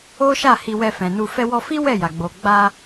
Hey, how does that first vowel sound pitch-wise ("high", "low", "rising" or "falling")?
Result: high